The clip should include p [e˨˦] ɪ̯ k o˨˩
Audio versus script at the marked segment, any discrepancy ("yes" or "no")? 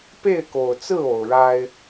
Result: yes